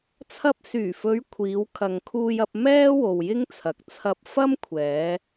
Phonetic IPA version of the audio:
t͡sʰ ɐ˧ p̚ s yː˨˩ f ɵ˨˧ ɥ kʷʰ iː˨˧ w kʰ ɐ˨ ŋ kʰ uː˧ j ɐ˧ p̚ m ɛː˥ w o˨ w j ɪ˥ ŋ t͡sʰ ɐ˨ k̚ t͡sʰ ɐ˧ p̚ f ɐ˥ m kʷʰ ɛː˨˧

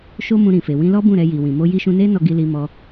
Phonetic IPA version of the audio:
ʃ o˦ m ũ˧ ɾ ĩ˨ f e˨ w ĩ˧ l ɔ˦ b ũ˦˨ ɾ ɛ˧ j i˨ w ĩ˨ m o˧ j i˧ ʃ ũ˧ n e˦ n ɔ˧ ɡ i˧ l i˧ m ɔ˧

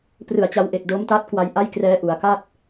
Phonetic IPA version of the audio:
p r ɯ˨˩ a̯ t͡ɕ a˦˥ w ʔ e˨˩ k̚ d o˦˥ m t a˦˥ t̚ k w a˧ j ʔ a˥˩ j k r ɛː˦˥ ʔ u˩˦ a̯ k a˥˩ t̚

